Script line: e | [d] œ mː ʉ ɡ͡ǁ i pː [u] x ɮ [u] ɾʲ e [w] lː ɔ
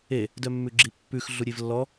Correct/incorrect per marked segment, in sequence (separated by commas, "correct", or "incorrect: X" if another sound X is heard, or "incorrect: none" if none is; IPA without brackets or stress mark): correct, incorrect: ʉ, correct, incorrect: v